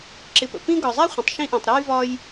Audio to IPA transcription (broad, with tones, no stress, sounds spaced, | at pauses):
ǁ ɪ˨ p ə̰˩ p ĩ˦ ɡ ɒ˨ zˤ a˥ χʷ ə̃˨ tˤ ʃ ĩ˦ ʔ ĩ˨ tˤ ɾ ɔ˥ j v ɒ˦ j